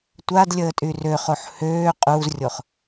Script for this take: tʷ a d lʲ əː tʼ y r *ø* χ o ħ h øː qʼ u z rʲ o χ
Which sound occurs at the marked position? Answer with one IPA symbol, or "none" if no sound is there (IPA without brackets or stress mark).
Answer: ø